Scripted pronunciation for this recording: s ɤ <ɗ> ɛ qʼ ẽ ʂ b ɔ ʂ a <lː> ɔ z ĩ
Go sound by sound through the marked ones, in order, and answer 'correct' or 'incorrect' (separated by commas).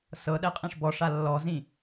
correct, correct